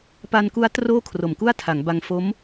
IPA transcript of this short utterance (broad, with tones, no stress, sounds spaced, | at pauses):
p a˧ n k u˦˥ a̯ t r oː˥˩ kʰ r o˨˩ m k u˥˩ a̯ tʰ a˩˦ ŋ b a˧ ŋ f o˦˥ m